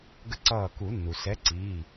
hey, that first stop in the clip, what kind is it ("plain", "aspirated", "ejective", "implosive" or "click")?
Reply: plain